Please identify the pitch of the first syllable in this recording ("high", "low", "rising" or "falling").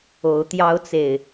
rising